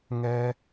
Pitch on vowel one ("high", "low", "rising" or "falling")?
high